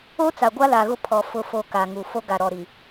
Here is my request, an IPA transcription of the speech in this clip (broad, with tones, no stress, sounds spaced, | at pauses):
o˦ t͡s a˨ ɡʷ a˦ l a˨ ɣ ʊ˦ pʰ ɔ˨ f ʊ˨ f o˨ k a˨ ŋ u˨ f o˦ ɡ a˨ ɾ ɔ˨ ɾ i˨